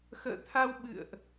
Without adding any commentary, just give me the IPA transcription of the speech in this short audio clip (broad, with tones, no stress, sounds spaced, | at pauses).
x ə̰ː˧˨ t̪ʰ a˧ w ɓ ɨ̰˧˨ ə̯ ʔ